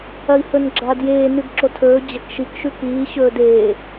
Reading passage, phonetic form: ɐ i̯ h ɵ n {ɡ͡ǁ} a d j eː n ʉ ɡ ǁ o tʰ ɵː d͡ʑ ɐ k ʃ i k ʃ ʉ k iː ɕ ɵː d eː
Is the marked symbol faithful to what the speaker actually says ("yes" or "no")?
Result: yes